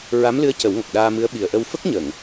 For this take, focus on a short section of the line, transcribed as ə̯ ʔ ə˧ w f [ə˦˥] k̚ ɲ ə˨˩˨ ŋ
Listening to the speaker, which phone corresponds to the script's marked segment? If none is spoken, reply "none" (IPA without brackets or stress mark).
ə˦˥